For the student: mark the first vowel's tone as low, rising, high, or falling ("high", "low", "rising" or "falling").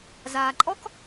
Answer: low